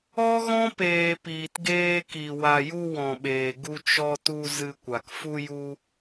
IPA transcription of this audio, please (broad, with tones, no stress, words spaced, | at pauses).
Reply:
ɔ˦ɣɔ̃˦peː˨ piː˨tɡeː˧ki˨ wa˨ju˧ wɔ̃˨ɓeː˨ɡu˧ t͡ʃɔ˧tu˧ zɨ˧kʷa˨k fu˧ju˧